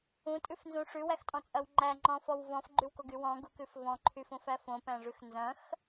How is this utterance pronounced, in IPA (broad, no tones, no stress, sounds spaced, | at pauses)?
ũ tʼ ʉ f n z ũ ʂ ʉ w æ x tʼ ɔ̃ t͡sʼ ɐ w ŋ͡ǃ æ ŋ͡ǃ ɔ̃ f ɔ w v ɔ̃ f ɡ͡ǃ ʉ w k o ɡ y w ɔ̃ ɡ u k ʉ f v ɔ̃ ǃʰ y f õ f æ f õ p æ̃ ʐ ʉ x n z ɐ̃ x